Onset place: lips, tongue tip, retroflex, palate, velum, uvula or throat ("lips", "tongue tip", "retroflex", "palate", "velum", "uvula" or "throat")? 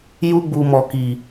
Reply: palate